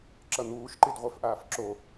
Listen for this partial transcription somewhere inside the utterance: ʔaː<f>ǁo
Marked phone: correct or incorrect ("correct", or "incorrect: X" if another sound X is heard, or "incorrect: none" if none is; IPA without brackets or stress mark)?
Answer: correct